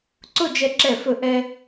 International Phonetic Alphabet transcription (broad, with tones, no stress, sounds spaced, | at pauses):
ǀ ʊ˥˧ d͡ʒ ɛ˧ ǁ ɛ˧˩ f ɵ˧˩ ʔ ɛ˧